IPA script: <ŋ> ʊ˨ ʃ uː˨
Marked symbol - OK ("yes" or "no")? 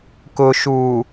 no